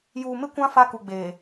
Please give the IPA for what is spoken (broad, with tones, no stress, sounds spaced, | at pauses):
j uː˨ m ɪ˦ kʷ ã˦ f a˦ k u˨ ɡ͡b eː˨